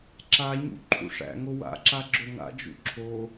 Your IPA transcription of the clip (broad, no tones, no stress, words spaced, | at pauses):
ǁaɲṵ ǃʰṵʂæ̰ŋo wa̰ǁa ɡ͡ǁoŋa̰d͡ʒṵ ǁʰo